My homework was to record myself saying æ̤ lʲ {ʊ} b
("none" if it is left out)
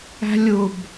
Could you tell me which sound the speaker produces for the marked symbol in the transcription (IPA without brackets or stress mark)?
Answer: ʊ